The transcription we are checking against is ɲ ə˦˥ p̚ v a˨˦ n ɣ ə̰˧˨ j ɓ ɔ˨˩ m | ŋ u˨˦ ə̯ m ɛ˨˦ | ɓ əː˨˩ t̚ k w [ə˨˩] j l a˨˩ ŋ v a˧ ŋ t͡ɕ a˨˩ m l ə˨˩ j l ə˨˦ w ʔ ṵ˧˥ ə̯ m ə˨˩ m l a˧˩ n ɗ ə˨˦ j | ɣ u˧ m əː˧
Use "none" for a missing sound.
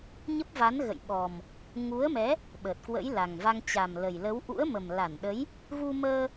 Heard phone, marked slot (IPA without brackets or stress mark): ə̰˧˥